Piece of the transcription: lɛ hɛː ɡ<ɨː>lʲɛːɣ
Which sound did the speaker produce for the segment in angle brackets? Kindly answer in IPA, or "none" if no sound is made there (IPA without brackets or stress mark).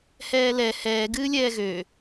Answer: ɨː